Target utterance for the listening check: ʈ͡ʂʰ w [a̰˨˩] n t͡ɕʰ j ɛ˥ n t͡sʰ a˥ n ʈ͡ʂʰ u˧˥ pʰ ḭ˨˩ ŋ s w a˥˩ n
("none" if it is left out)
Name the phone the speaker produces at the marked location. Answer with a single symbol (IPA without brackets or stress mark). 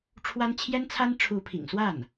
a˥